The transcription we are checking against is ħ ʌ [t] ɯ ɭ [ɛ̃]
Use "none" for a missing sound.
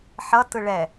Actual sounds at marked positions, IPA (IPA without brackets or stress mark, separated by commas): t, ɛ